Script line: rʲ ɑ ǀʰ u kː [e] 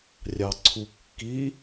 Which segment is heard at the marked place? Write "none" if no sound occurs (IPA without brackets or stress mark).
i